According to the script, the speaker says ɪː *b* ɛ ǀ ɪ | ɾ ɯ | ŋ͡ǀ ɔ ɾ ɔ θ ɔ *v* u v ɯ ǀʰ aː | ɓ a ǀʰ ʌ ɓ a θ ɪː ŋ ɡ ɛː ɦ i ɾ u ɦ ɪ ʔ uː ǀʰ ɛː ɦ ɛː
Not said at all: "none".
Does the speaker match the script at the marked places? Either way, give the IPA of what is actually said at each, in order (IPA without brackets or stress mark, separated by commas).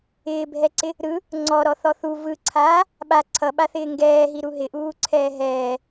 bʱ, θ